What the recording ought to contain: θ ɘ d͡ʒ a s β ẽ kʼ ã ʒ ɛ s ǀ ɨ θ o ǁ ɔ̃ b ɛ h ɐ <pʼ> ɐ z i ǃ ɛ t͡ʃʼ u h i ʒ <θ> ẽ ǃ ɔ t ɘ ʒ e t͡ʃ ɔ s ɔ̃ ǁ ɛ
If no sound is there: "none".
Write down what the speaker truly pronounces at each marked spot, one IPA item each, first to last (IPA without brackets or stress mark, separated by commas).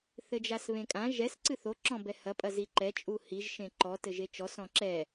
pʼ, ʃ